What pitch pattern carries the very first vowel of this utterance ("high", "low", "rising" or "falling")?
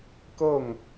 falling